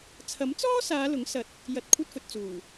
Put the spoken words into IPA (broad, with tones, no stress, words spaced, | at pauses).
t͡sʰɐ˨˥mt͡sɔː˥saː˨˧ lʊ˨˥ŋ sɐ˨t̚ | jɐ˨t̚kʷʰɐ˧t̚fɵ˨t̚ t͡suː˨˩